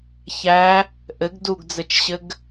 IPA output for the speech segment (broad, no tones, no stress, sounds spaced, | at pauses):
ç æ | ʔ ɘ ɡ d u ɡ d͡z ɘ t͡ʃ ɕ ɘ ɡ